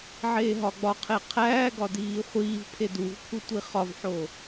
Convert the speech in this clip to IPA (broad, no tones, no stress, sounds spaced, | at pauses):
ʕ eː ɦ ɒ ɡ͡b ɒ qʰ e qʰ æː ɡ ɒ d iː χʷ iː v pʰ e d u v pʰ u tʷ i χ ɒ v ħ o